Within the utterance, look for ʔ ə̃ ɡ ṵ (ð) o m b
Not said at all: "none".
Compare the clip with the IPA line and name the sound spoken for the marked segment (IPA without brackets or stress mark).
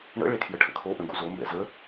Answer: z